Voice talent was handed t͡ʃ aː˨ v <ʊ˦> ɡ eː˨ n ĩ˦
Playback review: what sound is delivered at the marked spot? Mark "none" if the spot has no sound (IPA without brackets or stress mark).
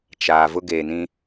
ʊ˦